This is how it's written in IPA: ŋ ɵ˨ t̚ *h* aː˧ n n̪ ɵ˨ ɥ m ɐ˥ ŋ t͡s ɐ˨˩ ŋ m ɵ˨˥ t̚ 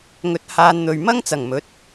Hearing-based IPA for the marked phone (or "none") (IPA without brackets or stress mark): h